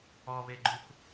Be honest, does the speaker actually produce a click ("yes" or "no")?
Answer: yes